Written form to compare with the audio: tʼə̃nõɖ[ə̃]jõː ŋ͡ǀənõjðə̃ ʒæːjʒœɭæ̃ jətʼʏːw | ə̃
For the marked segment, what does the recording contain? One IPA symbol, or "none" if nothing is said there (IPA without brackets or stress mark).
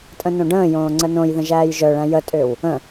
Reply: ə̃ː